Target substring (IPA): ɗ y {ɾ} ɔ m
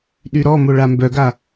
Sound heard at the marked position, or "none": ɾ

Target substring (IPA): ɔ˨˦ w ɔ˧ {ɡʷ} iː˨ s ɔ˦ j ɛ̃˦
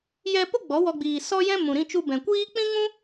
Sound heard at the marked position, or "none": ɡ͡b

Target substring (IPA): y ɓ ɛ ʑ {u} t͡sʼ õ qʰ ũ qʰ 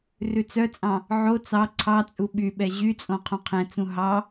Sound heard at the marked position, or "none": y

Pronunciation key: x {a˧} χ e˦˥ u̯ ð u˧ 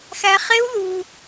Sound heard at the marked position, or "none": æ˧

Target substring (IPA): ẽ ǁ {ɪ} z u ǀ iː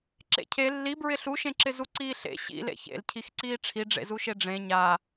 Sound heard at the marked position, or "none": ɪ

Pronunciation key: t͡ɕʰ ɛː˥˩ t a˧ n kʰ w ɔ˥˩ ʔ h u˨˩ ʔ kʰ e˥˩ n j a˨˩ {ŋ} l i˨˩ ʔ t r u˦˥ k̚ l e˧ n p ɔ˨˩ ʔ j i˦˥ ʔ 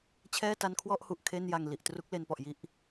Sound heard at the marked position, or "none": ŋ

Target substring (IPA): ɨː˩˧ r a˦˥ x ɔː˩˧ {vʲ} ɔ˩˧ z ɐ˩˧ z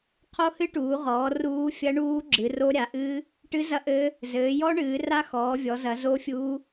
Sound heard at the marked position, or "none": vʲ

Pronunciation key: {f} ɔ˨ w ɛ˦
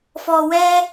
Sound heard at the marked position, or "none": f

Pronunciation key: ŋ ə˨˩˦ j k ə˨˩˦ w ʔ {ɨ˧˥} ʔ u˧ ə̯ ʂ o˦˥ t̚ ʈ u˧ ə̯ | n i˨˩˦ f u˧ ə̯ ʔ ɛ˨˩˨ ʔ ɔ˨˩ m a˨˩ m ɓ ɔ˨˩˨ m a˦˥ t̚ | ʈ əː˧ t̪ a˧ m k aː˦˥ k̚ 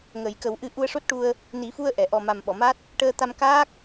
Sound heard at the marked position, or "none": ɨ˧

